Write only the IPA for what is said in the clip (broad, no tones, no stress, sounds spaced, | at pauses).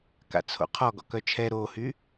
k a̰ t͡sʰ o̰ qʰ ɔ ɡ ɔ̰ k œ t͡ʃʰ ɛ ɾ o h y